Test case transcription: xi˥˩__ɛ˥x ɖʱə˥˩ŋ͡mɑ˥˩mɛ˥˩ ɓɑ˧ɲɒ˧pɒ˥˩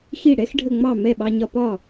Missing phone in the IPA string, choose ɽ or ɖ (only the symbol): ɽ